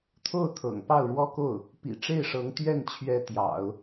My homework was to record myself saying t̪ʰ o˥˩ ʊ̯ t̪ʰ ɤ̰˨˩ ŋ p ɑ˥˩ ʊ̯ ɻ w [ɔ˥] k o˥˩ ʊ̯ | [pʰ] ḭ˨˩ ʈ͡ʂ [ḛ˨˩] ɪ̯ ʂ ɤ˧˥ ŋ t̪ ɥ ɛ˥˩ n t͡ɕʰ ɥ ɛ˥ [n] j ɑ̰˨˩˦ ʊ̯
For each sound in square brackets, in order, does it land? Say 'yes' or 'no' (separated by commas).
yes, no, no, no